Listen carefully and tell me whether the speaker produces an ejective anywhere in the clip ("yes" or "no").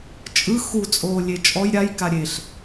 yes